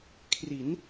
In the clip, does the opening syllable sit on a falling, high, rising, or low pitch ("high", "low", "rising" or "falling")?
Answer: rising